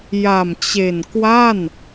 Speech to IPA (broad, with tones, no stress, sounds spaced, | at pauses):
j a˨˩ m t͡ɕ e˨˩ n k w a˥˩ n